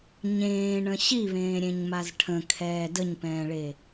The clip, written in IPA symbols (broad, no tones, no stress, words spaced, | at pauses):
ɲẽːɳə̃ ɕiβẽːɾʲẽɲmaz ʈʰə̃kʰɛː dəɲpɛ̃ːɭe